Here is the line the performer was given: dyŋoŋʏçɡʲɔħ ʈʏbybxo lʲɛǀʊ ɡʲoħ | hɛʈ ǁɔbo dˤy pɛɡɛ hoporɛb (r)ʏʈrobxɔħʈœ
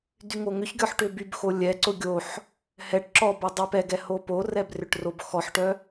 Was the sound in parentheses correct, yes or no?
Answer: yes